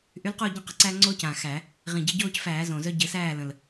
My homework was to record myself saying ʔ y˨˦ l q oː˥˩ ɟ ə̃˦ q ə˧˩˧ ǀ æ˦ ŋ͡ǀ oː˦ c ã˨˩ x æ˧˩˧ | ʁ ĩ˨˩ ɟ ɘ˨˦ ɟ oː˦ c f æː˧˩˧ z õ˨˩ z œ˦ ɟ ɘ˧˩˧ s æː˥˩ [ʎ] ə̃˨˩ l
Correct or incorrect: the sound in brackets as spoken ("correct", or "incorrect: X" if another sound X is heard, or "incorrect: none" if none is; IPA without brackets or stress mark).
incorrect: l